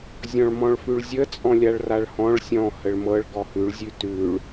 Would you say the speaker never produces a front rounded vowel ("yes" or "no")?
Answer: yes